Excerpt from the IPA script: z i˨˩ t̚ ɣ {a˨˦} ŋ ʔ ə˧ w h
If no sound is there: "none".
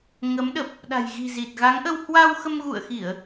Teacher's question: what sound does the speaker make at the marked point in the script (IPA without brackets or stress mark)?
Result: a˨˦